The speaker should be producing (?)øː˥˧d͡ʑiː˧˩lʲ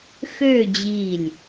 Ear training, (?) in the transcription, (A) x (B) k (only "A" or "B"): A